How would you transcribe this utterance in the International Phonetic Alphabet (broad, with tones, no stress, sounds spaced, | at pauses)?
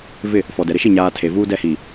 v ɪ˦˨ | f ɔ˨ d ɛ˨ ɾ ɪ˦ ʃ i˦˨ ɲ aː˨ tʰ e˨ v uː˦ d ɛ˦˨ h i˨